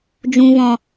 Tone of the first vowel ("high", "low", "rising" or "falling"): low